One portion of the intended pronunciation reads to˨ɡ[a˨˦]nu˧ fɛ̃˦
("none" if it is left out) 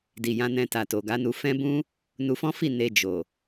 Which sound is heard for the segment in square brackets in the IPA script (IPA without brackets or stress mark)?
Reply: a˨˦